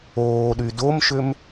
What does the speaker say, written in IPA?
oː ɗ y d o m ʃ ʏ m

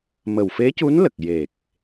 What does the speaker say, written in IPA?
m ə˨˩ w f e˧˥ c u˧˥ n l ə˨˩ k̚ j e˨˩ k̚

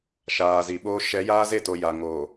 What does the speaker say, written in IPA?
ʃ aː˨ z i˨ ɓ oː˦ ʃ ɛ˨˦ j aː˦ z e˦˨ t o˨ j a˨ ŋ o˨

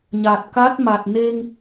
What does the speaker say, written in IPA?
ɲ a˨˩ t̚ k a˦˥ t̚ m a˨˩ t̚ n e˧ ŋ

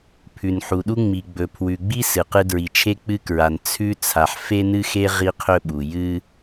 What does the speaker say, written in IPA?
pʰ ʉ˨ n ħ u˨ ɗ u˦ ŋ͡m i˨ ɡ͡b ɵ˨ pʰ w ʉ˨ ɡ͡b i˦ s ɨ˨ q ɨ˦ d ɹ i˨ t͡ʃʰ e˦ k͡p ɨ˦ k ɹ a˨ n t͡sʰ ʉ˦ t͡sʰ a˨ ħ f e˦ n ɨ˦ x e˦ ʁ i˦ qʰ ɵ˦ ɓ u˨ j ɨ˦

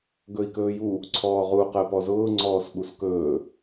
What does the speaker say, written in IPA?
ɡ ɵ i̯ k ɵː j u | ǀʰ ɔː ʁ u q ɜ p ɔ z ʊː ŋ͡ǀ ɔː s ɓ u s k ɵː

